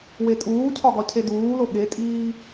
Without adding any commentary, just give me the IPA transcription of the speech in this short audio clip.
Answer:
w e tʼ uː cʰ ɒ ɡ ɒ cʰ e d uː l o ɠ e tʼ iː

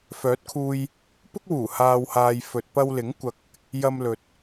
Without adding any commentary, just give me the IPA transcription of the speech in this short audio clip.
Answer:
f œː˨˥ t̚ kʰ uː˧ j | p ʊ˥ k̚ w uː˨˩ h aː˧ w h aː˧ j f ɵ˨ t̚ p ɐ˧ w l ɪ˨˥ ŋ kʷ ɐ˧ k̚ | j ɐ˧ m l ɵ˨ t̚

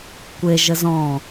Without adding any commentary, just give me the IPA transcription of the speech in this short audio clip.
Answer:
kʷ e ʒ ə z ɔ̃

